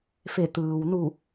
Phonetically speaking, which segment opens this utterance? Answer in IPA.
f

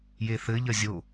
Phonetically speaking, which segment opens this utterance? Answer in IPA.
j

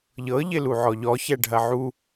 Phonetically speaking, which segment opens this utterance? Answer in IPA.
ʎ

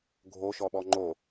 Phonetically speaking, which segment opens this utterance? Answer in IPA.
ɡʱ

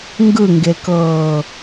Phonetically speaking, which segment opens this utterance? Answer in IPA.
ŋ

